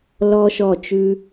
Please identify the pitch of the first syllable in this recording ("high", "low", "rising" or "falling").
high